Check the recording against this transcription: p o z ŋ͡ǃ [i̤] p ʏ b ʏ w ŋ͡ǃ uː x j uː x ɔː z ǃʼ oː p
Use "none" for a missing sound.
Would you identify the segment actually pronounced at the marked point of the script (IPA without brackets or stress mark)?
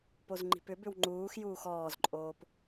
i̤